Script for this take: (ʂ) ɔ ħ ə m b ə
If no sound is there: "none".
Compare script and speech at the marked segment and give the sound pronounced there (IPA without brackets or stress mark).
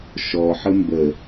ʃ